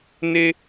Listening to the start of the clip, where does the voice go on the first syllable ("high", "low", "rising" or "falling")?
high